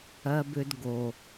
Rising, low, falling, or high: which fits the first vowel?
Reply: high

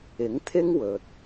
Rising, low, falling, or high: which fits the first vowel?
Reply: rising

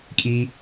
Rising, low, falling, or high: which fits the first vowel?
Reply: high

